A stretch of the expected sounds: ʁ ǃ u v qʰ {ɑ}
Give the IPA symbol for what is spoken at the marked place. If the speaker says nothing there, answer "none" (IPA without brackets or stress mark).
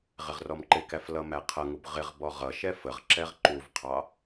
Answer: ɑ